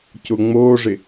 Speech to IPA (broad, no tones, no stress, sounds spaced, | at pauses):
c ʊ ŋ͡m o ʐ ɪ